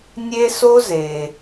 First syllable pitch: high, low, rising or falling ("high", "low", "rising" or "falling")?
high